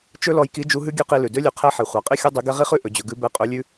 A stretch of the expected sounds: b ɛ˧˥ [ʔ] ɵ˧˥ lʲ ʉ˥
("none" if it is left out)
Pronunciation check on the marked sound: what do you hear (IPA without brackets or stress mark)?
qʼ